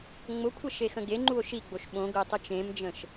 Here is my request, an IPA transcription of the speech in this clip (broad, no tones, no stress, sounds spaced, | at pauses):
ŋ͡m ʊ kʷʰ ə ʃ e x ə̃ ɡ e ŋ͡ǃ u o̯ ʃ i ɡ͡b o ʃ ɓ õ ɡ ʊ e̯ tˤ ʊ t͡ʃ ẽ m d͡ʒ ə̃ ʃ